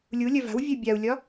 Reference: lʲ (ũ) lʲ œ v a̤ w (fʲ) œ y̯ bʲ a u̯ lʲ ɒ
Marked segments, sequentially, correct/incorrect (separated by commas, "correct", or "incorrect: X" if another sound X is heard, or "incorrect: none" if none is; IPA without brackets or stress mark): incorrect: u, incorrect: vʲ